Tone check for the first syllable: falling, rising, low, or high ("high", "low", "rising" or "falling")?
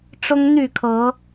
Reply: high